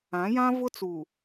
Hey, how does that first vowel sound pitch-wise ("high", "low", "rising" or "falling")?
rising